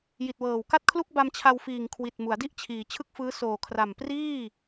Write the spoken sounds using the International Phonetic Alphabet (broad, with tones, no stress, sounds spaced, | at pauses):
j i˨˩ t̚ w ɤː˨˩ w k a˥˩ t̚ kʰ l u˥˩ k̚ b a˧ m t͡ɕʰ a˧ w f iː˨˩ ŋ kʰ w i˨˩ t̚ m u˩˦ a̯ d i˥˩ ʔ t͡ɕʰ iː˩˦ t͡ɕʰ ɯ˥˩ k̚ f ɯː˦˥ s oː˨˩ kʰ r a˨˩ m p r iː˥˩